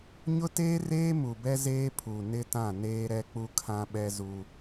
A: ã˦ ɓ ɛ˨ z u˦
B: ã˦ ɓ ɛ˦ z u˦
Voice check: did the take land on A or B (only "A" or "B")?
B